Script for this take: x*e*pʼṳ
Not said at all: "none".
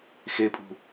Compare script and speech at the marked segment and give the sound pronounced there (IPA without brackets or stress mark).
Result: e